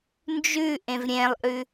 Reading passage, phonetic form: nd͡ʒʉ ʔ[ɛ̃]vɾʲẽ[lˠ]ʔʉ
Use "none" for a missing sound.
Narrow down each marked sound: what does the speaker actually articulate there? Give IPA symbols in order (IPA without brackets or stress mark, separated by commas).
ẽ, lˠ